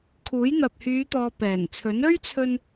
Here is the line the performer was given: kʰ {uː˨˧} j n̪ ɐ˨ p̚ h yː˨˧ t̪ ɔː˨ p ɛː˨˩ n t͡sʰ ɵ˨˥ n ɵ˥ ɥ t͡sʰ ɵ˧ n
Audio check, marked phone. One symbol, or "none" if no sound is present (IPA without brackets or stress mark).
uː˨˥